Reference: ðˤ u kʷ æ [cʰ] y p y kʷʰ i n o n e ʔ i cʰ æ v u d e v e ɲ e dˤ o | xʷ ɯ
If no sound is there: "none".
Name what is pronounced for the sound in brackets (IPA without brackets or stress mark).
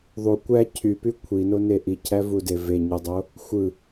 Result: cʰ